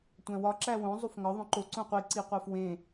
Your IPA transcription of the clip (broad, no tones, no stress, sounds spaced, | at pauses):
tʷ æ̃ w ɒ ǁ æ w õ zˤ u f ŋ ɒ ðˤ õ ǃ o ǀ õ qʷ i ǀ i qʷ æ f w ẽ